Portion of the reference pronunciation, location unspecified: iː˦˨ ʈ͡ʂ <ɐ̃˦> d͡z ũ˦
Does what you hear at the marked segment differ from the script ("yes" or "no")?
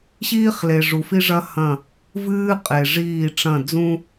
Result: yes